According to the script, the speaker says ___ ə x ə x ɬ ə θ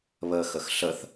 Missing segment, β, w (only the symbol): β